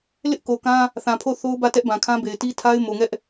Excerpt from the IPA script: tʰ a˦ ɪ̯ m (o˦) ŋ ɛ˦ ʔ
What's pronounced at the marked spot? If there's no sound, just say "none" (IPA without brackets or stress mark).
o˨